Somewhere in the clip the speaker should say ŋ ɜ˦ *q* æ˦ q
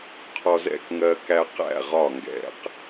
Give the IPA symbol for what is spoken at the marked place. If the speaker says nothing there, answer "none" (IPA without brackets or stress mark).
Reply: k